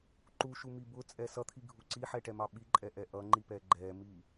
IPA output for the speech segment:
ǃuʃumi bʊt͡sʼɛ sʌt̪ʰiɡʱu ǀiħɛʈɛmɑ ɓiǃʼɛʔɛ ʔʌŋ͡ǃipɛ ɡ͡ǃɛmi

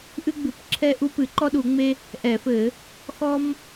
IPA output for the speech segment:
ʔɨ˥ɡ͡bɨ˧˩˧p ǁʰɛ˥ʔu˥ pɨ˧˩˧ǃɔ˥ɗu˧˩˧ ŋ͡me˥ | ʔɛ˧˩˧fɘ˧˩˧ | xɔ˥m

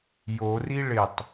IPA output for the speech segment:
jori ɭɪtˤ

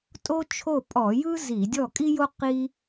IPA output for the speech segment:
tʼo˥t͡ʃʰo˥˩ pʼɔ˧˩˧ jɯ˥ zi˧˩˧dʲɔ˥˩kʼi˥jo˥ qi˥

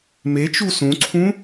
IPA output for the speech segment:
met͡ʃu sũǀʰũ

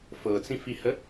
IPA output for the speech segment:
fɤt͡sĩfihə

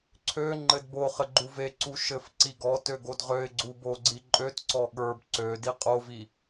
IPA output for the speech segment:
ǀʰø ŋ͡ǃɘdboχɘ ɡ͡ǃuveǀu ʃɘfǀi ɡɔtø ɡodʁøɪ̯ɡ͡ǀu bo ɡ͡ǀiǃʼøtǀɔ ɠə˞b ǀø diqʼovi

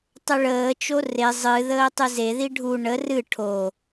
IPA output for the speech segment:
tˤəɭəːt͡ʃo re zˤɨðəː tˤɨzeði ɖʱu ɳə rɨ ʈʰo

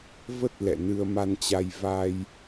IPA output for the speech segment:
və˦˥t̚ lɛ̰˧˨ nɨ˧ə̯ma˧nt͡ɕa˧j va˧j

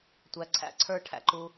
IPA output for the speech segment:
tʷæ˨ ǀʰæ̰˨˦ ǀʰə˞˧ʈʰæ̰˨ ǃu˧

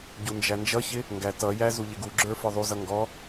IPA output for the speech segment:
ɟund͡ʒænd͡ʒʌçɪ | ŋɡætʌjæ zuʎɪɡuɡ͡ǁə˞ fə˞ðˤuzʌ ŋɡɔ

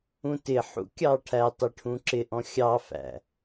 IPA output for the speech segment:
ũtɪħṵ kʲɑʈʰætˤɪ ʈʰũǁɪʔɔ̃ xʲɑfæ̰

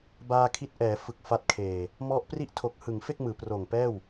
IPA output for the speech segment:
baː˧kʰi˦˥t̚ ʔɛː˩˦ fɯ˨˩k̚fa˦˥t̚kʰeː˨˩ | mɔ˦˥ʔ pri˥˩ʔ tʰo˨˩k̚hɯ˩˦ŋfe˥˩k̚ mɯː˩˦proː˨˩ŋpɛː˥˩w

